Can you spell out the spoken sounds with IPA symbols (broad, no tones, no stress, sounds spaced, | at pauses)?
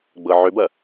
ɡ͡b ɤ ʕ ʏ b ɐ